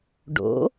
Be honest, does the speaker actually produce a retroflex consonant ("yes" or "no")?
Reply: yes